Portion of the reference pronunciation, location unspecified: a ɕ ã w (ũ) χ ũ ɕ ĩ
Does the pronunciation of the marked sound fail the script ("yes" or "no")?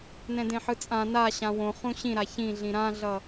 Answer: yes